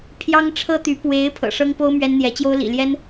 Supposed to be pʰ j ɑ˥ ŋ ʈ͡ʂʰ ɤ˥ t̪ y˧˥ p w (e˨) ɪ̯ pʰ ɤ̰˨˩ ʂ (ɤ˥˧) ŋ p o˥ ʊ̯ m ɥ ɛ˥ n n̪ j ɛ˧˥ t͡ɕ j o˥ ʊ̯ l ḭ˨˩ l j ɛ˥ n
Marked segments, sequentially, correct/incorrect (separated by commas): incorrect, incorrect